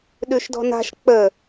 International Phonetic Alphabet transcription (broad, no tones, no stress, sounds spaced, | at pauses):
ɗ ʉ ʃ d ɔ̤ n a̤ ʃ k͡p ə